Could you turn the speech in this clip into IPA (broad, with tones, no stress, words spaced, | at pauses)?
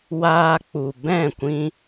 waː˧k͡pu˨ bɛ̃˦˨kʷĩ˧